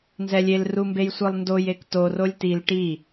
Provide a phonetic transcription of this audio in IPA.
n z ɛ lʲ e l r u m b e j sʷ ɯ lˠ n d o j e k t o r o lʲ t i l ʈ i

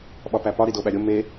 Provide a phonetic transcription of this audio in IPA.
ɓ ɒ p æ p ɒ ɾ i d o ɓ æ ɾʲ o m e

